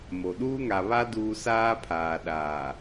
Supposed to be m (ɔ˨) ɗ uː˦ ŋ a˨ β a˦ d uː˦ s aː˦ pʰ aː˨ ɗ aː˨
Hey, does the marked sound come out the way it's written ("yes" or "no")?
no